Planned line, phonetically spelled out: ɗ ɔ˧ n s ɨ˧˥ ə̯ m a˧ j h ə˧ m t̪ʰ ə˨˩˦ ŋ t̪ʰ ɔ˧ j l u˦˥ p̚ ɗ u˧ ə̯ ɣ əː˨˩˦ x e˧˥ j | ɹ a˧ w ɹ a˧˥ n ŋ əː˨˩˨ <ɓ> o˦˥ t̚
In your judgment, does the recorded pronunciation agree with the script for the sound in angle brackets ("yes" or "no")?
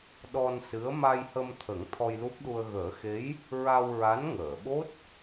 yes